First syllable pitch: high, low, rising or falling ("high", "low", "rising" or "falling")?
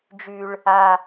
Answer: high